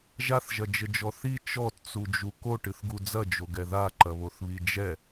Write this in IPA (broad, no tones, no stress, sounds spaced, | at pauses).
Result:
ʒ a θ ʒ ɐ d͡ʒ ɘ d͡ʒ ɔ θ i t͡ʃ ɔ t t͡s u d͡ʒ u k o ʈ ɨ θ ɡ u d͡z ɐ d͡ʒ o ɡ ɛ ð a ǃ ɐ β o θ β i d͡ʒ ɛ